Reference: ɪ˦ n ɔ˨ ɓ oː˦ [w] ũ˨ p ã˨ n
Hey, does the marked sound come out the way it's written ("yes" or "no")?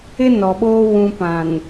yes